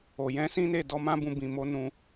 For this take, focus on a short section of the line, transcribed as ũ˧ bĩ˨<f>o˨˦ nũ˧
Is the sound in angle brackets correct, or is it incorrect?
incorrect